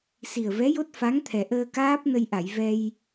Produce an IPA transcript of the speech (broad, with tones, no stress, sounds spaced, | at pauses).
s i˨˩ ə̯ v ɛ˧˥ j o˦˥ t̚ f a˧˥ ŋ t̪ʰ ɛ˨˩ ʔ əː˧ k aː˦˥ p̚ n ə˧ j ʔ a˨˩˨ j v ɛ˧ j